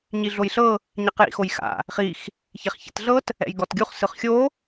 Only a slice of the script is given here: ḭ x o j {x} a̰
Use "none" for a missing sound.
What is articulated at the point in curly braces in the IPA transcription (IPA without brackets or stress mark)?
x